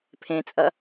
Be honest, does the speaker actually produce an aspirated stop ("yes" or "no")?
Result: yes